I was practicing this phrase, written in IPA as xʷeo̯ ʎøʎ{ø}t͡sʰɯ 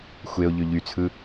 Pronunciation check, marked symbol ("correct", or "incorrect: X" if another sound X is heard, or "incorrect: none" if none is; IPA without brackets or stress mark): incorrect: y